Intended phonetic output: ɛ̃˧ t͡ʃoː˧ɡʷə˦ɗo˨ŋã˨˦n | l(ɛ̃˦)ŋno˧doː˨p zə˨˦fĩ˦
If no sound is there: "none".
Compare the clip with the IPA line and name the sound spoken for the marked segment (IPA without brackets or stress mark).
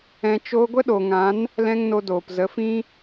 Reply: ɛ̃˦